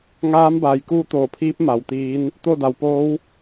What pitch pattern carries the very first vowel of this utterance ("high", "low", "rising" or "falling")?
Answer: rising